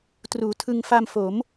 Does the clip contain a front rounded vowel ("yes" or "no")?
no